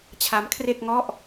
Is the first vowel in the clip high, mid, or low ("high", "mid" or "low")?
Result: low